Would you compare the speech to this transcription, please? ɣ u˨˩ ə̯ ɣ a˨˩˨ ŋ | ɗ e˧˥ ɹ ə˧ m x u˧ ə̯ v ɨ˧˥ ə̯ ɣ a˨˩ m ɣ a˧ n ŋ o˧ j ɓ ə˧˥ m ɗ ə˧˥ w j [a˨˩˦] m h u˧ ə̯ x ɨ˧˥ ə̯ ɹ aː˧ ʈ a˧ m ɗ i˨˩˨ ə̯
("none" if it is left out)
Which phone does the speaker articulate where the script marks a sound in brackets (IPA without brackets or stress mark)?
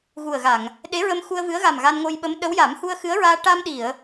a˨˩˦